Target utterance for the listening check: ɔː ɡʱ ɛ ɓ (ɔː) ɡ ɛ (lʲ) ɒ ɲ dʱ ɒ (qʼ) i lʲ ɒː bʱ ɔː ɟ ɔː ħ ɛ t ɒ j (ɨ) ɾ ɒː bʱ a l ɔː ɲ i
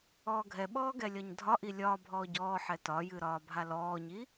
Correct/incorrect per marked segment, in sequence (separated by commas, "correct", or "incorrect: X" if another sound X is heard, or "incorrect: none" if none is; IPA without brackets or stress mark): correct, correct, incorrect: ʔ, correct